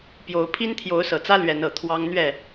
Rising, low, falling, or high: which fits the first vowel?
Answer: rising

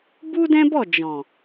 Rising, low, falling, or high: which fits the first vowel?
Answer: high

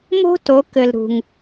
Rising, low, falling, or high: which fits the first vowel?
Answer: high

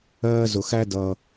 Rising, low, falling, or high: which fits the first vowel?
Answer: high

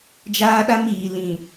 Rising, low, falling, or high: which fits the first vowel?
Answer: high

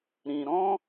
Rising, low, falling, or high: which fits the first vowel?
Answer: low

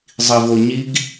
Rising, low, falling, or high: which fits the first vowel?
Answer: low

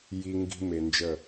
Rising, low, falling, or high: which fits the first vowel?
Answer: high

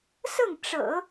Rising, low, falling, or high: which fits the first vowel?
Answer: falling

